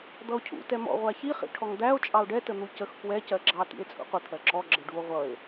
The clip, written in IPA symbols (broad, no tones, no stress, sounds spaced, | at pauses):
d̪ ʌ o̯ cʰ ṵ t ɛ m ɔ̰ ʁʷ æ ç i χ ḭ ʈʰ ɔ ŋ d̪ æ o̯ t͡ʃʼ ɑ o̯ ɖ ɛ t ə n̪ u c ə x k w ɛ c ɜ ɡ͡ǁ ɑ t ḭ e̯ t͡sʼ ṵ qʷ ə t̪ʰ ɜ ǁ ɔ ɡ͡ǁ ə ɖ u o̯ ʁʷ ʌ e̯